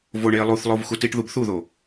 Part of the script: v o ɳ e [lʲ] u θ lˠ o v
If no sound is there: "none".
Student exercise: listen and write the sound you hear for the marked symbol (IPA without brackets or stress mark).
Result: lˠ